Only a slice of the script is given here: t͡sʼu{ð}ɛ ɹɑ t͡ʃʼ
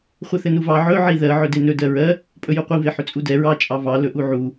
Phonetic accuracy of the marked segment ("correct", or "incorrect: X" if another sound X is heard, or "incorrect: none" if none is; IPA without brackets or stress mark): incorrect: d